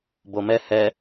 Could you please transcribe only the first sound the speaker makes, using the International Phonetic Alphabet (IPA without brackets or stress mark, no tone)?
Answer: b